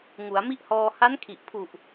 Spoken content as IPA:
ŋ u˩˦ a̯ m i˦˥ ʔ h ɔː˧ h a˦˥ n kʰ i˨˩ ʔ pʰ u˨˩ ʔ

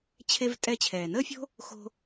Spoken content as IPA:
t͡ɕʰ e˧ v tʼ ɛ˧ t͡ɕʰ ɛː˩ n əː˥ fʲ o̤˥ | x o̤˧

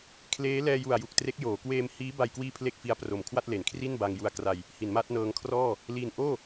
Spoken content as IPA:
kʰ l eː˦˥ l ɛː˧ j u˨˩ a̯ j u˨˩ k̚ t r e˦˥ k̚ j oː˩˦ k w eː˧ m h iː˦˥ b a˧ j k w iː˥˩ pʰ l e˥˩ k̚ f i˦˥ a̯ p r o˨˩ m kʰ w a˥˩ t̚ l e˩˦ n kʰ r i˥˩ n b a˧ ŋ j u˧ a̯ k r a˧ j | h i˩˦ n m a˦˥ t̚ n ɤː˧ ŋ kʰ r ɔː˥˩ | l i˧ n ʔ oː˥˩

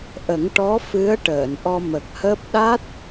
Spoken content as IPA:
ʔ ə˨˩˦ ŋ ʈ ɔ˧˥ f ɨ˧˥ ə̯ ʈ əː˨˩˨ n ʔ ɔ˧ m ə˨˩ k̚ h əː˦˥ p̚ ɗ a˦˥ t̚

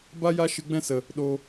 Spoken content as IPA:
b a˦ j a˦ ʃ ɨ˧ ɡ͡b ɛ̃˦ s ə˨ | ɗ o˧

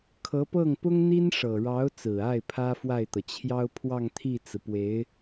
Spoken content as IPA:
kʰ ɤ˧˥ p ɤ˥˩ ŋ p ʊ˥ ŋ n̪ i˥ n ʂ ɤ˨˩ ɻ ɑ˧˥ ʊ̯ t͡s ɹ̩˨˩ a˥˩ ɪ̯ pʰ ä˥ f w a˥˩ ɪ̯ t̪ ɤ˩ t͡ɕʰ j ɑ˥ ʊ̯ pʰ w ɑ˥˧ ŋ t̪ʰ i˥˩ t͡s ɹ̩˩ p w e˧˥ ɪ̯

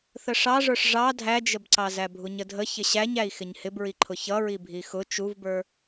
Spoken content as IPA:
θ ə ʂ ɑ ʐ ə˞ ʂ ʐ ɑ dʱ æ d͡ʒ ə b ǀ ɑ z æ bʱ u ɲ ə dʱ ə ç ɪ ɕ æ ɲ æ i̯ x ɪ ɲ h ɪ b ɹ i ǃʰ ʊ ç ʌ ɹ i bʱ i x ʊ t͡ʃ u v b ə˞

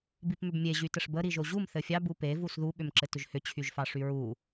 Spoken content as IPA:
b i p m ʏ b mʲ e ʑ y t ə ʂ b ə ɾ i ʒ o ʑ u m θ ɘ fʲ ɑ b u p e v u s ð u ɓ ʏ m ǁ ɘ t ʏ ʒ h ʏ t͡ɕʰ y ʒ f ɑ ʂ y ɹ u

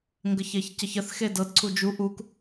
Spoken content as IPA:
ŋ ɡ ə ç e ç c ə ç ə θ x e d ɤ d ǀʰ u d͡ʒ u ʔ u k

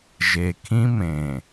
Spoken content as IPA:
ʒ e˨ kʰ ĩ˦ m ẽ˨

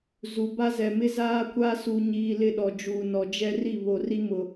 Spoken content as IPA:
z u˨ b a˦ z ɛ˨ m ɪ˦ z aː˦ kʷ a˦ s u˨ ɲ iː˨ l ɪ˦˨ ɗ ɔ˨ d͡ʒ uː˨ n ɔ˨ d͡ʒ ɛ˦ r i˦˨ β o˨ r i˦ m ʊ˨

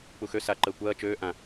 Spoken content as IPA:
k͡p u x ø s a ǃ əː kʷ ɐː t͡ʃ øː ʔ ã

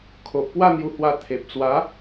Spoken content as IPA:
kʰ o˨ ʔ p w a˥˧ n̪ j u˧ h w a˧ t̪ʰ e˨ p̚ t͡s w a˨˦

